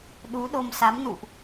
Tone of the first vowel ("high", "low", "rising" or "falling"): rising